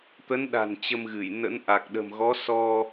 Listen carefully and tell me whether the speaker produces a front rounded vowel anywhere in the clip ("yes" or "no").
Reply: no